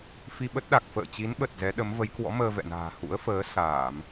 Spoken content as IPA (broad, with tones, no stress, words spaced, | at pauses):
fi˧ɓə˦˥t̚ɗa˨˩k̚ fə̰ː˧˨t͡ɕi˨˦nɓə˨˩t̚ zɛ˨˦ɗə˨˦mvə˨˦j kwɔ̰˧˥məː˧vɛ̰˧˨na̤ː˨˩ hṵ˧˥ə̯fəː˨˦ saː˧˩˨m